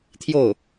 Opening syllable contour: falling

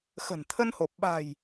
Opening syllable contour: low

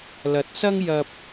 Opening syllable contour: rising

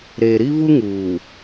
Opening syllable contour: low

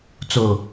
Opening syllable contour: low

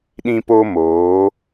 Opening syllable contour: high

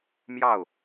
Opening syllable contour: falling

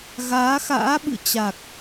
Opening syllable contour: rising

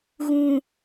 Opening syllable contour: low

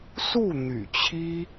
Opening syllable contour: falling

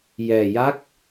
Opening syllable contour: low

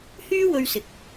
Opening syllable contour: high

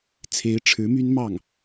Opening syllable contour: rising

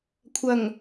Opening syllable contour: low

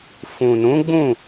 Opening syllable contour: low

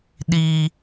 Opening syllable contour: high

